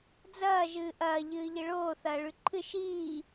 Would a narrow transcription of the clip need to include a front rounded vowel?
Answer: no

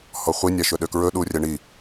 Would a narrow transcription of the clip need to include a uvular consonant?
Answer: yes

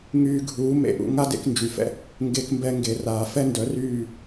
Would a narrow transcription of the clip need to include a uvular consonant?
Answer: no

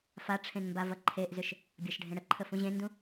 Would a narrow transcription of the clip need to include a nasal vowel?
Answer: yes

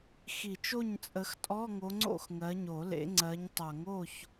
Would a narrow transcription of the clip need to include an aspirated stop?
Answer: no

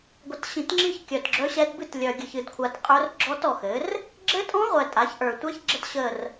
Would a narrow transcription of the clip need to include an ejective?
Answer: yes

